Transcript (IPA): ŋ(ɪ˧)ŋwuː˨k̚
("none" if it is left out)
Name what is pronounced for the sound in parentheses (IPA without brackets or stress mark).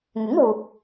ɪ˨˥